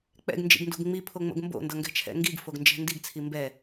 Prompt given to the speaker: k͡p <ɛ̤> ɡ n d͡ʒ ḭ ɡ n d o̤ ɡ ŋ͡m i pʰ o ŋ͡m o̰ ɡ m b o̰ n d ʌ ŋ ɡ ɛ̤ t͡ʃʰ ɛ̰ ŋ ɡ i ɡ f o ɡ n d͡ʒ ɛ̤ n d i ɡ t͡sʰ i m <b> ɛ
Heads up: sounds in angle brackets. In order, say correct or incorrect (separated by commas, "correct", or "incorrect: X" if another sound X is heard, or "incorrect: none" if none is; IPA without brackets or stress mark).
incorrect: ɛ̰, correct